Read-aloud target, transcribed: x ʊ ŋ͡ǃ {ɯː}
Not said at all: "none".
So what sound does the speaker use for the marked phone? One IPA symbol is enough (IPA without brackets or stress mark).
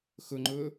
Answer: ʊː